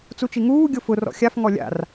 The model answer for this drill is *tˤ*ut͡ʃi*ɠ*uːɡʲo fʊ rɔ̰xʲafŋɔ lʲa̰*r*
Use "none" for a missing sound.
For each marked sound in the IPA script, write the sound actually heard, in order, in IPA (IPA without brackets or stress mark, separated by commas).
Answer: t͡s, ŋ, r